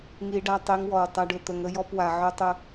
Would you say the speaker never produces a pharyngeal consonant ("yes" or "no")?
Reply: no